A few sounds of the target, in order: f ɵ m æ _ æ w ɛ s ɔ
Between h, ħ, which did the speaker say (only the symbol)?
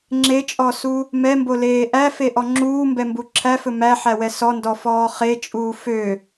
ħ